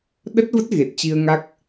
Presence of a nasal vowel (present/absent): absent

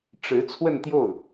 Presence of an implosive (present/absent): absent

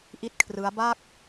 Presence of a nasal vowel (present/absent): absent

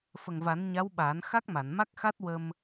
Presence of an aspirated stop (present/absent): absent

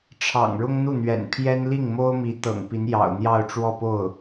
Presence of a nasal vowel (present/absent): absent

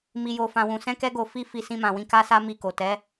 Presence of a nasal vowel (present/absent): present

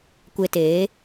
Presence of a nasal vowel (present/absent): absent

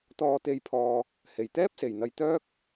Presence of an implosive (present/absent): absent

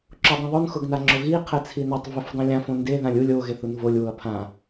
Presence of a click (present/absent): present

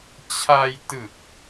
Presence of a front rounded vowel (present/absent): absent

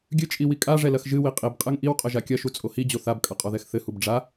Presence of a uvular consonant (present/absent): present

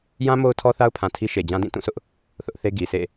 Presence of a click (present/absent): absent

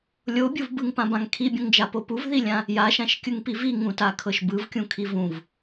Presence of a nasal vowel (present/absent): present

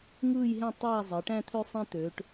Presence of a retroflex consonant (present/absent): present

